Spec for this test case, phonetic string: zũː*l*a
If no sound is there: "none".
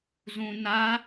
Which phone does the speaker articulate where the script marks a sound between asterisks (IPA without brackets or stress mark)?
n